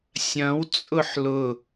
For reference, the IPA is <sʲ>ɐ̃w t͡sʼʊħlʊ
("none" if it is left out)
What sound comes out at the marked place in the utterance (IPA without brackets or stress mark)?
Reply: sʲ